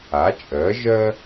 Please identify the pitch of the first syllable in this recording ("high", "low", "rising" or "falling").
rising